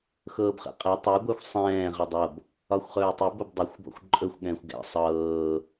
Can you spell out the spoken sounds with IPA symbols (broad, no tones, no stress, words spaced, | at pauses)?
xɤːbχɛ̰qʼɛ tˤɤ ɡʷɛxʷsˤɛ̃ː ʁədˤɤb | ɒxʷχɵːtˤɵb əbdˤɛxʷ bɔ̰xʷǃʼɵxʷ ɠɛ̃ːxʷɡɛ̰ sˤɤː